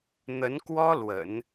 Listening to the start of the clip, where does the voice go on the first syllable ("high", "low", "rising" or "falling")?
rising